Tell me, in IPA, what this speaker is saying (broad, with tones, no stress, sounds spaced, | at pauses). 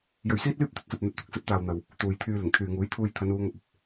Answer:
j ɵ˧ ɥ s iː˥ t̚ l yː˥ p̚ t̪ ɵ˥ t̚ s ɐ˧ p̚ n̪ ɐ˧ t̚ t̪ ʊ˨ k̚ s ɐ˨˥ t̚ t̪ aː˨ w n̪ ɐ˨ w | t̪ uː˨ j t̪ʰ yː˧ l ɪ˨˩ ŋ t̪ʰ yː˨ ŋ uː˨˥ j t̪ʰ uː˧ j t̪ʰ ɐ˨˧ n uː˨˧ ŋ ɐ˧ p̚ ɐ˧ p̚